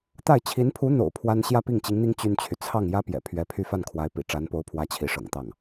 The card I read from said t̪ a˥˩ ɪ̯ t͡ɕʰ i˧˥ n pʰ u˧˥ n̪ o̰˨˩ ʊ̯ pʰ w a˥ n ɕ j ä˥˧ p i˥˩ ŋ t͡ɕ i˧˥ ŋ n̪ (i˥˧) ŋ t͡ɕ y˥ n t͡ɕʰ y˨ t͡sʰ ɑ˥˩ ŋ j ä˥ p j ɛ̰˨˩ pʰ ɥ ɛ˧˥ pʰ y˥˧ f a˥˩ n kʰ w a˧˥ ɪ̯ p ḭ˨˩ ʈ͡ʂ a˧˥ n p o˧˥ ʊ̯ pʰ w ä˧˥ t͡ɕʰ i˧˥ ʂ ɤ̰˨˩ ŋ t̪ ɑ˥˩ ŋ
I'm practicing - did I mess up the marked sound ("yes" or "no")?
yes